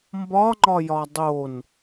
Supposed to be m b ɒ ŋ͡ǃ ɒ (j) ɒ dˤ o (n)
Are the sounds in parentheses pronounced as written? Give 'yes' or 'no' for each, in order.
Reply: yes, yes

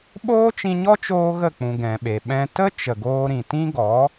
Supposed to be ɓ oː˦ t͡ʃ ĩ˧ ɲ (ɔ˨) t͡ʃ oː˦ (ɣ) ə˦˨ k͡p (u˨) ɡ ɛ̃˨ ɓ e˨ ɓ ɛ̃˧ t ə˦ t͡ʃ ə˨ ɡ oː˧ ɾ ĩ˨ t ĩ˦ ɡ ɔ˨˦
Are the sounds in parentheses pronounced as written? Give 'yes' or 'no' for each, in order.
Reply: no, yes, no

